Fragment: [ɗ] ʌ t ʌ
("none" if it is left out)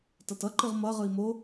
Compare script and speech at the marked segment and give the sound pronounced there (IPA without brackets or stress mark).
t